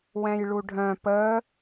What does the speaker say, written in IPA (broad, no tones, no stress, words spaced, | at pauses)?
wɛ̃jɭuɖʱœ̃ pə